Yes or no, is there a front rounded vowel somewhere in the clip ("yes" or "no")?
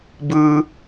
no